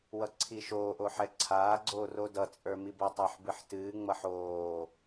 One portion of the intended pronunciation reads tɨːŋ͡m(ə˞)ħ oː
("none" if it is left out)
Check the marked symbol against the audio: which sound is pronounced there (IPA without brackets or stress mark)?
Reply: ʌ